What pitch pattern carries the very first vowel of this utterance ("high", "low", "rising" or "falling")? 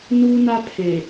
high